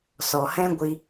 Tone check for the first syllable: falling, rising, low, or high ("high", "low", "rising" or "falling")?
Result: low